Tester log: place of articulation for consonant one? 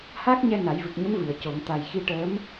glottal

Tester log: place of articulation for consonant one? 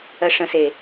retroflex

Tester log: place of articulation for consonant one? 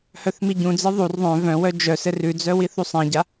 glottal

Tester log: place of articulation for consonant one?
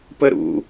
labial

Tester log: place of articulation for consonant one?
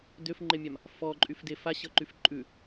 alveolar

